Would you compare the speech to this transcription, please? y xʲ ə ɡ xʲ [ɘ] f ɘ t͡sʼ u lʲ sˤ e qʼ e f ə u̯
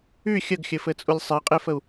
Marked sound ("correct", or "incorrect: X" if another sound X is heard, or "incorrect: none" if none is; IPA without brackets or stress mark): correct